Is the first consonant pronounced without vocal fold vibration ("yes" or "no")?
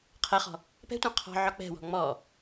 yes